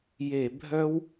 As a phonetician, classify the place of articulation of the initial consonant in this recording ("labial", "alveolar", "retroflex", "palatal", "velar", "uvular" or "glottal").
palatal